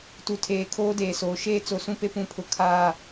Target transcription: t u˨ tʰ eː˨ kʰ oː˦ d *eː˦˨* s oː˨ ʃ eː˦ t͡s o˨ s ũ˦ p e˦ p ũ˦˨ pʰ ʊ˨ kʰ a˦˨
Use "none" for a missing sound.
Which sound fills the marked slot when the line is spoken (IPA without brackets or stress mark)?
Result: eː˨